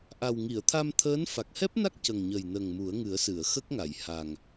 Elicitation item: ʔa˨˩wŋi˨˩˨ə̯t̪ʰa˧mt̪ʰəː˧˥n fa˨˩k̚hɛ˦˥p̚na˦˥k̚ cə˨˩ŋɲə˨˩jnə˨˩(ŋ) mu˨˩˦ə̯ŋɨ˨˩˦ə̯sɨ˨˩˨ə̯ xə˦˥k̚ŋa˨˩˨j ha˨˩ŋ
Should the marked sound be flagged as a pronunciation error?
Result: no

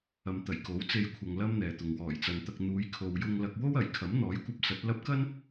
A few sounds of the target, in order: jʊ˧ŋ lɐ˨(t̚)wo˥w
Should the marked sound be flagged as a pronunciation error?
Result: yes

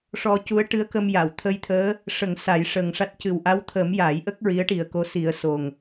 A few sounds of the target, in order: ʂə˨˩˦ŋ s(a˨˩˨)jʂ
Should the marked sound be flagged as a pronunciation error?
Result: yes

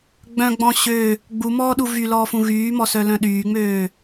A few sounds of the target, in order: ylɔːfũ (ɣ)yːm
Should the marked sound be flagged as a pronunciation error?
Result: no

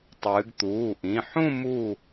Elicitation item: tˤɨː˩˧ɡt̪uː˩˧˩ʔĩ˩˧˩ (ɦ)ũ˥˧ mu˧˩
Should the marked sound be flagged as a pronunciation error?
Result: yes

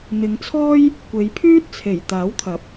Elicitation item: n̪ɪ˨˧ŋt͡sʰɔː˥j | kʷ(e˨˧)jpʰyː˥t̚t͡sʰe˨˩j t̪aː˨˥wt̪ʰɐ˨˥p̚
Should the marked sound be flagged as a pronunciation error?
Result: no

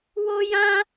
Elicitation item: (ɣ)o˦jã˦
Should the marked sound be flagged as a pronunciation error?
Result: yes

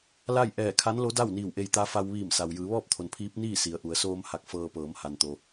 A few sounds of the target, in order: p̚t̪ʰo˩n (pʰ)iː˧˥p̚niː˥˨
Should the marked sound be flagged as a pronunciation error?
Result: no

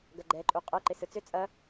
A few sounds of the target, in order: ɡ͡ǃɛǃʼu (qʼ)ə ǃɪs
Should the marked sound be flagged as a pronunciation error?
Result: no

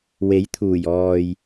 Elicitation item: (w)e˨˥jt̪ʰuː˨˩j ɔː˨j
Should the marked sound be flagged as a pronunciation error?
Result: no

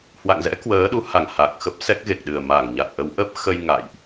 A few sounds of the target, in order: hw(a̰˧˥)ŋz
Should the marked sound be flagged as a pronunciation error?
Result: yes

